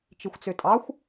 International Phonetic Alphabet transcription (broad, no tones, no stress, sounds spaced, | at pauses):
t͡ʃ i xʷ t͡s ø tʼ ɑ xʷ